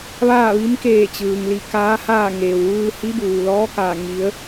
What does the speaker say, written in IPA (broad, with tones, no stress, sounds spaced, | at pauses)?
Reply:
ʋ aː˥˨ ʋ i˧˥ m k eː˧˩ t͡ɕ ɯː˩ ŋ l i˧˩ k aː˧˥ h aː˥˨ ŋ eː˩ w ʋ ɯː˧ h i˧˥ b uː˩ l ɔː˧˥ k aː˧˩ ŋ i˩˧ ə̯